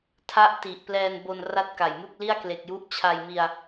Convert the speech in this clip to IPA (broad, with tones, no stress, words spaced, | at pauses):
tʰa˥˩ʔti˨˩ʔ plɛː˧nbo˧n ra˥˩t̚ka˨˩jmu˥˩k̚ li˥˩a̯kle˨˩k̚ju˦˥ʔ t͡ɕʰa˧jmi˧a̯